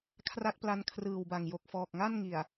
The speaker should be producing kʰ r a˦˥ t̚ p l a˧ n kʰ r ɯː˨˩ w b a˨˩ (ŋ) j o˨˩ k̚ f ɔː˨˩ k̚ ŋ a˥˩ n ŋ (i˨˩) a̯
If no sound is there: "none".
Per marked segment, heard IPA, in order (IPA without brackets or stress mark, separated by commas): ŋ, i˨˩